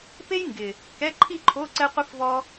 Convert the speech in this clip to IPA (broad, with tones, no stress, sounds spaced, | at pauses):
p e˥ j ŋ ɡ ɪ˨˩ | k ɛ˧˥˧ ǃʰ i˥˧ ǃʰ o˧˥˧ ǀ ɛ˥ qʷ i˥ f v ɔ˥